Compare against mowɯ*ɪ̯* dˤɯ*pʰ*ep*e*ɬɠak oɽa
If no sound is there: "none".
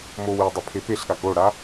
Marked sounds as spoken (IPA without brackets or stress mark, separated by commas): ə̯, pʰ, e